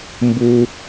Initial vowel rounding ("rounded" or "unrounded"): rounded